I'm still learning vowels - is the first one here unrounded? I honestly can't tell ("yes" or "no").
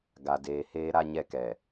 yes